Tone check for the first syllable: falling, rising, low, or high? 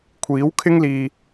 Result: rising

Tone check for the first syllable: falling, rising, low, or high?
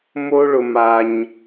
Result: high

